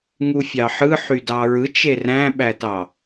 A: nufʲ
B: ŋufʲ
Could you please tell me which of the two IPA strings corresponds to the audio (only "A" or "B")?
B